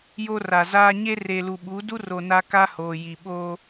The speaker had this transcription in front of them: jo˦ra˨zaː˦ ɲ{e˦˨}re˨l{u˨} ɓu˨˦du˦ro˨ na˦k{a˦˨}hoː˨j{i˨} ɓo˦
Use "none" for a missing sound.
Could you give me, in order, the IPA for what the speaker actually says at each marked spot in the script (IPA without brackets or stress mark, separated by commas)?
e˦, u˨, a˦, i˨